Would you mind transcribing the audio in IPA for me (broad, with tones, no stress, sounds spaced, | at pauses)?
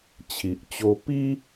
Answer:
t͡ɕʰ i˨ ʔ t͡ɕ o˧ p i˦